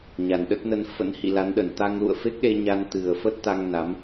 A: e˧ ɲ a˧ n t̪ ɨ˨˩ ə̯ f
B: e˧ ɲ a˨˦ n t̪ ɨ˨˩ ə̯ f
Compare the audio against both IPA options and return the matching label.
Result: A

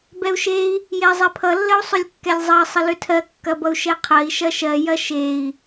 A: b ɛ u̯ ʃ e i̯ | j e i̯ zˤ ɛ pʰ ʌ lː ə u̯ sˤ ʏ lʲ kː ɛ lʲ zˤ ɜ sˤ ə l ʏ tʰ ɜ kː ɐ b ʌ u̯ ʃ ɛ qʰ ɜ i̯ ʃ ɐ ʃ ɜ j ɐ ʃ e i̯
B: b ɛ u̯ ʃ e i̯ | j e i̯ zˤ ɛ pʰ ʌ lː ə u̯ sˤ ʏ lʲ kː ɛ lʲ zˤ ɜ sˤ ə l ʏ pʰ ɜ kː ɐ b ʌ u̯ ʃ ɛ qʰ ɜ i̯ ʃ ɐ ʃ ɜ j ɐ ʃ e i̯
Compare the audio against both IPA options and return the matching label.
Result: A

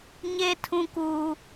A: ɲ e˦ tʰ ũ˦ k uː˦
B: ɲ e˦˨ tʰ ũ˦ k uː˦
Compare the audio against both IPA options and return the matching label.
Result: A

